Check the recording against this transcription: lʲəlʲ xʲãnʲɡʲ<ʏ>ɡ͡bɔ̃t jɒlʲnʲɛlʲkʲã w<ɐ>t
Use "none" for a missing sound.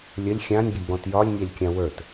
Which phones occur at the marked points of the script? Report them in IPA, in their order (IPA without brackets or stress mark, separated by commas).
ə, ə˞